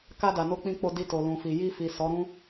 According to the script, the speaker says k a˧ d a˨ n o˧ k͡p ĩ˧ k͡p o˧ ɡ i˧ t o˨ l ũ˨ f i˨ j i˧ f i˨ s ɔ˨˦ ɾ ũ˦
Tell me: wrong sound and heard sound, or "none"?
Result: ɡ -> d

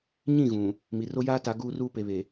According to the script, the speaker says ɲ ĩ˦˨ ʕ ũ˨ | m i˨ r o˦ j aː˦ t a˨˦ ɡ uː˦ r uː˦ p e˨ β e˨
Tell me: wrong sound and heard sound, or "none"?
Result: ʕ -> ɣ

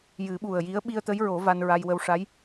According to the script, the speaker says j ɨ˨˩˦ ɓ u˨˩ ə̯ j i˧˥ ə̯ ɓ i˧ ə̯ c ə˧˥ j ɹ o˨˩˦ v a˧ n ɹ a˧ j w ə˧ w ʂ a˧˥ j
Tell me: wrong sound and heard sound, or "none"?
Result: c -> t̪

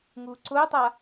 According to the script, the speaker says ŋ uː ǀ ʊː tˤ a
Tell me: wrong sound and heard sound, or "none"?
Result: none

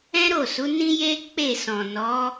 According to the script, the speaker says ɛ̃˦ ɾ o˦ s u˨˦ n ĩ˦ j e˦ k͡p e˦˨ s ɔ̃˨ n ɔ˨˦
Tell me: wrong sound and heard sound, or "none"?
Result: o˦ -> o˦˨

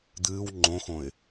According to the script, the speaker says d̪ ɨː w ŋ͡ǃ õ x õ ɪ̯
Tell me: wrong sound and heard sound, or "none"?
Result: none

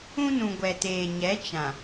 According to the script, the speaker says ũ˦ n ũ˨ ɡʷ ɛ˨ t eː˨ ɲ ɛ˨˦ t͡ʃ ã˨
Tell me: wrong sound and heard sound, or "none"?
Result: none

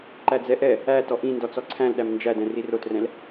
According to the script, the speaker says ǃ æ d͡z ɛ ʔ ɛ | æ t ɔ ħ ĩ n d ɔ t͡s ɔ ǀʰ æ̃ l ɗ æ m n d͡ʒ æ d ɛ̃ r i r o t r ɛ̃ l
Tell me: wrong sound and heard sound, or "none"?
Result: ħ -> ʔ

